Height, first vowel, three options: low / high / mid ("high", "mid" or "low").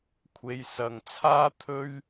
mid